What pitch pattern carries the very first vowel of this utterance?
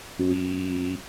low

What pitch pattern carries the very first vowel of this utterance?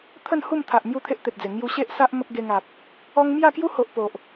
falling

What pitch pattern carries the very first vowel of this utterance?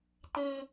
high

